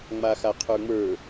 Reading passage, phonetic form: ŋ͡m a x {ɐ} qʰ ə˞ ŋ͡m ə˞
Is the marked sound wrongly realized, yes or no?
yes